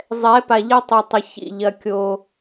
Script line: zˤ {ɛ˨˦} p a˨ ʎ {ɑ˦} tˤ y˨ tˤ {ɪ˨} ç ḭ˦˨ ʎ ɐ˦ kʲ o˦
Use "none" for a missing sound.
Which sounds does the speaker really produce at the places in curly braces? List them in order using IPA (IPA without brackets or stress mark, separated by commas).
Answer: ɛ˨˦, ɐ˦, ɪ˨